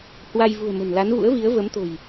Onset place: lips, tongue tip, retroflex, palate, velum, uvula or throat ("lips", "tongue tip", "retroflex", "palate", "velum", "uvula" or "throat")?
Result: throat